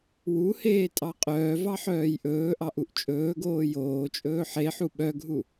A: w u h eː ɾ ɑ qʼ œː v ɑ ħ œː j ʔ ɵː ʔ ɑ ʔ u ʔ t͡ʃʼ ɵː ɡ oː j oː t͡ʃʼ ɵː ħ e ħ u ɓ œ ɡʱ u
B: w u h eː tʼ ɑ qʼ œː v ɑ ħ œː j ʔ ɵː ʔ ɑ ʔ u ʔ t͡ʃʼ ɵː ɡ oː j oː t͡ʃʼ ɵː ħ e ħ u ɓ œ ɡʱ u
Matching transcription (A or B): B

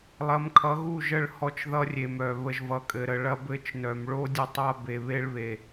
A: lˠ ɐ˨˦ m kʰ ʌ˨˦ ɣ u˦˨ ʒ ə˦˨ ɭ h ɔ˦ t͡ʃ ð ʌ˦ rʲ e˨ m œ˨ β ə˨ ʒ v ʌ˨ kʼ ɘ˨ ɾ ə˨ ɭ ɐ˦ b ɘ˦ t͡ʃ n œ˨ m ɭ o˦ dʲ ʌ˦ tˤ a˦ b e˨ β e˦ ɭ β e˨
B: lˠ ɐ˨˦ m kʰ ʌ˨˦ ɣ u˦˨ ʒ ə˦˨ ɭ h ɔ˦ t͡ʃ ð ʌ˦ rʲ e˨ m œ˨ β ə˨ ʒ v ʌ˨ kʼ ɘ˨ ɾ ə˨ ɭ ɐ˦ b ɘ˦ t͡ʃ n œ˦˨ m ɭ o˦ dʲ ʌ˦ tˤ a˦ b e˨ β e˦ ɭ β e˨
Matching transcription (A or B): A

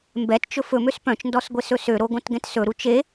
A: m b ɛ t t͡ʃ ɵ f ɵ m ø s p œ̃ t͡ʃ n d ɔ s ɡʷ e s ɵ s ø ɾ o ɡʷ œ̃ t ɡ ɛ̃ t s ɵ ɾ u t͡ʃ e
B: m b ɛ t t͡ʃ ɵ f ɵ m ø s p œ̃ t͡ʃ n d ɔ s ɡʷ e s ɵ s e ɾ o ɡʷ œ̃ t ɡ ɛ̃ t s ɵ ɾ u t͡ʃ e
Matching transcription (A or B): A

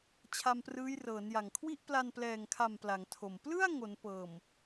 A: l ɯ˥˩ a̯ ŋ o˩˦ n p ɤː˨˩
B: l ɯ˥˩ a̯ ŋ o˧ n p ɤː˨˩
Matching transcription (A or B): A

